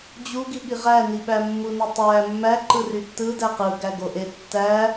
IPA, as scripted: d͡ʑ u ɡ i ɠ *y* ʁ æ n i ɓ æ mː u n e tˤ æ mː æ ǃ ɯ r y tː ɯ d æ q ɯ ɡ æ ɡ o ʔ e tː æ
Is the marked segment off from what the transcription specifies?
yes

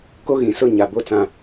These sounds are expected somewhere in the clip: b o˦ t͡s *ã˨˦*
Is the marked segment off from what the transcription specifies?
yes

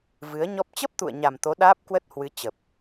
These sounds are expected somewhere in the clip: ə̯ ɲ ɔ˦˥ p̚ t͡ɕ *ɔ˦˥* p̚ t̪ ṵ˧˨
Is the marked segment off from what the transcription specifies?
yes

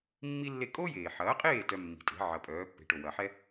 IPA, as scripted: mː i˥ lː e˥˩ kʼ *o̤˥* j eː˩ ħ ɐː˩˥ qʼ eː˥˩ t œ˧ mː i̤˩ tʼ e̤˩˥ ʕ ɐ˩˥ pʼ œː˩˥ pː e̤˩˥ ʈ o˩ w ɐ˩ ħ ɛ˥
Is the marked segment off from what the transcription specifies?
yes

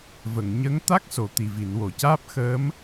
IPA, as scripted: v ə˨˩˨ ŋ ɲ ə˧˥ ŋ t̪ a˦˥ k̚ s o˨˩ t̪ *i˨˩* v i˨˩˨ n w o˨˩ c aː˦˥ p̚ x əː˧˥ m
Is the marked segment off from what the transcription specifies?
no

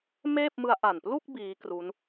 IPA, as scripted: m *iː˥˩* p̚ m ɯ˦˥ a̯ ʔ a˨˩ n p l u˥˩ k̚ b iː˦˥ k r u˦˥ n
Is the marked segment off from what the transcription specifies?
yes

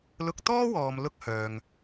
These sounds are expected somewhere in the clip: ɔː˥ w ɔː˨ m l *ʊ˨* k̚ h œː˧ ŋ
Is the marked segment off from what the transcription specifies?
yes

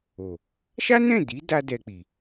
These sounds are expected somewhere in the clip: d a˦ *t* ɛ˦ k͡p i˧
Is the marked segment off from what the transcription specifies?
yes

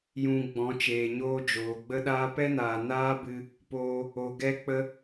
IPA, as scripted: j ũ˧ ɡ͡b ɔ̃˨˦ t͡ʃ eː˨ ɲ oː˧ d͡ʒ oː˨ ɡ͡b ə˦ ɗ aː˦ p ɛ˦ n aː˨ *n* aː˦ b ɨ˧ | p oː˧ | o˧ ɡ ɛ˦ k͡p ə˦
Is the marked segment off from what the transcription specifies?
no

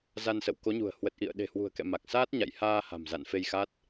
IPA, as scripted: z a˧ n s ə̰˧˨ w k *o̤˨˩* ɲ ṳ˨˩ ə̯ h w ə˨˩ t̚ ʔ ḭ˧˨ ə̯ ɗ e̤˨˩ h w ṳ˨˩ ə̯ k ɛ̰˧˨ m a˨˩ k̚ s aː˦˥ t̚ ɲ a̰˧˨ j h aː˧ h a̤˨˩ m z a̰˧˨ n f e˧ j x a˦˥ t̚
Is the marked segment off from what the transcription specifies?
yes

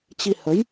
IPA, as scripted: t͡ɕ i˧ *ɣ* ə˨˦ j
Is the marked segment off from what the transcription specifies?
yes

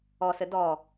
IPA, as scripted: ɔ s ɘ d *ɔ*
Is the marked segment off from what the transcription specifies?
no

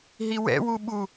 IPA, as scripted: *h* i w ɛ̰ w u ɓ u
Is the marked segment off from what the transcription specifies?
yes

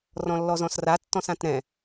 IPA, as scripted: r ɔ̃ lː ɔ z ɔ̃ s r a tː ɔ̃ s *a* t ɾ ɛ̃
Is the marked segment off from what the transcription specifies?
yes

